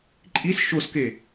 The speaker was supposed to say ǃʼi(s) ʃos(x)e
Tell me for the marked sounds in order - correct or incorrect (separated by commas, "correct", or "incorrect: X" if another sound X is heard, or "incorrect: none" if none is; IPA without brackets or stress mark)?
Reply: correct, incorrect: k